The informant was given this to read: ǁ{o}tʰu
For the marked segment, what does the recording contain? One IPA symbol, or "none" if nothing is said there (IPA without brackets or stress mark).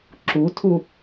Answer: u